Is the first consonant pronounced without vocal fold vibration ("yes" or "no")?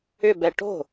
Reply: no